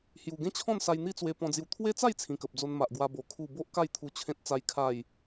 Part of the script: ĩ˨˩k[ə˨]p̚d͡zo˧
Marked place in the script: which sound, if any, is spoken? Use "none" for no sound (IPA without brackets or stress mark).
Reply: ə˨